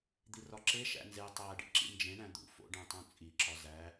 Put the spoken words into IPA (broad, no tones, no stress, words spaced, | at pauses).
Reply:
d̪irɒǁe ʃæ̰nze tˤæ ɖḭǁḭnd͡ʒẽ ɳæ̃d̪ṵ fo̰ɖẽtˤũt͡sʼi ǁɒzæ